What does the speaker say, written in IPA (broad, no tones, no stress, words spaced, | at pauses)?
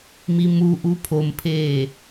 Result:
mimuʔu pʰompʰeː